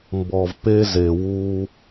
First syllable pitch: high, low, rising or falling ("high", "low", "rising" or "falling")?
low